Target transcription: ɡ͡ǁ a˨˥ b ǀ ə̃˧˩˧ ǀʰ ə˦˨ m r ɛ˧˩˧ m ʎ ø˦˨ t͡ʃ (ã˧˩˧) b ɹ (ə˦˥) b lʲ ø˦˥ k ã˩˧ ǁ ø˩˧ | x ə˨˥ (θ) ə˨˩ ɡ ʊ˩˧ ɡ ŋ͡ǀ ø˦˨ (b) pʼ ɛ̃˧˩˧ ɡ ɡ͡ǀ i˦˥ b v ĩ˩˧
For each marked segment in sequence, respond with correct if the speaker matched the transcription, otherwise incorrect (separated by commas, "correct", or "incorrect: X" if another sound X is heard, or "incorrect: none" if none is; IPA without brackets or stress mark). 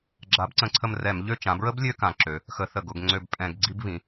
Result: incorrect: ã˩˧, correct, correct, correct